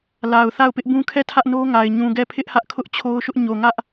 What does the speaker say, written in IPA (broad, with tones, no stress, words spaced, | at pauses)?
la˨ʊ̯θa˦˨ʊ̯ pɪ˦ʔbũ˦ kʰɛ˦˨ tʰä˦ʔno˦ŋa˨ɪ̯ ɲũ˨ɡɛ˦˨ pʰɪ˦ʔhä˦ʔ kʰʊ˦ʔ t͡ɕʰo˦ʊ̯ʃʊ˦ʔ ɲo˨ ŋä˦ʔ